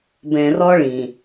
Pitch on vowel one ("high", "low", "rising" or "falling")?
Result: low